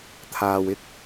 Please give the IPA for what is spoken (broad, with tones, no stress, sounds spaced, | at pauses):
t̪ʰ aː˨ w ɪ˧ k̚